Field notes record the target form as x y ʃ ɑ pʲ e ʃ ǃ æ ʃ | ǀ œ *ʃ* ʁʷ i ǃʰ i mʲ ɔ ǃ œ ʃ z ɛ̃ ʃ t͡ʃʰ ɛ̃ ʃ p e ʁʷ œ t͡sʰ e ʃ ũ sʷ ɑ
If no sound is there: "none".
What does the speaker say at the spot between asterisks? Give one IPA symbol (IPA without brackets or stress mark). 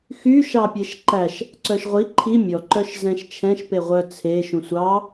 ʃ